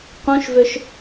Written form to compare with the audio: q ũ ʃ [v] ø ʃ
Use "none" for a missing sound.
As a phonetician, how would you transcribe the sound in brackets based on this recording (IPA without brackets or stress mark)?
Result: v